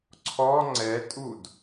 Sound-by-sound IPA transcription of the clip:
ǀʰɔ ŋ͡ǀɛtʼud

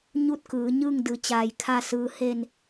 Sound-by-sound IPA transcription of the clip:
ɲu˥˨t̚kɯː˩˧ ɲɯː˥˨ŋdɯː˩˧t͡ɕaː˩j kʰa˧˩sɯː˩ he˧˩n

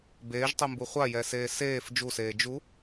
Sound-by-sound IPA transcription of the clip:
beːʒtˤumbu χʷajɛseː seːf d͡ʒuseː d͡ʒu

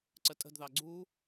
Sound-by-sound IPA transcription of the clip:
ǀətʼə̤dðɑ ɡ͡ǀu

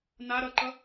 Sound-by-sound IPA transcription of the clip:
na ɾʌǃʌ

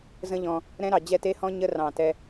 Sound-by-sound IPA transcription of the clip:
zə̃˦ʎɔ̃˧ | ɾɛ̃˦ɾɑ˨ d͡ʑɛ˦˨te˦hɔ̃˦ ɲə˦rɑ̃˨ tɛ˧

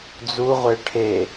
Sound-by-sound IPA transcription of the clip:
d͡zuʁʷe ʈʰe

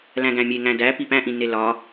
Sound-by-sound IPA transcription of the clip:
læ̃ɡæ̃mʲe ŋæ̃dæ pipæ̃ʔĩnːe lɒ

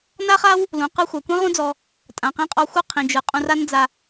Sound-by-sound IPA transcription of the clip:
na˦χa˦w | lũ˨qɯ˧ xʷa˨kʷĩ˦ʁũ˦d͡zɔ˧ | tʼã˨qĩ˧qʼɔ˧xʷɯ˦˨ qʰĩ˨d͡ʒɯ˨ qʼũ˧ra˦n d͡za˧

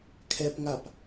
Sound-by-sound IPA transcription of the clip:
kʰɛpŋap

